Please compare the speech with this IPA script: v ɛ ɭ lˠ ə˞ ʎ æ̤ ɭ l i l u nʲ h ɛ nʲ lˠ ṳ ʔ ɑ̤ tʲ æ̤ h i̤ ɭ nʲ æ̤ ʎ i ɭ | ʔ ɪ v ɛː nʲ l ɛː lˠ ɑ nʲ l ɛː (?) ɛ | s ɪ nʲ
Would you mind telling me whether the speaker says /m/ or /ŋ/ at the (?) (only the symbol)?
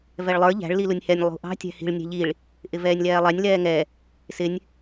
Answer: ŋ